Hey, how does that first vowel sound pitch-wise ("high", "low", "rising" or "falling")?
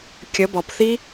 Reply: rising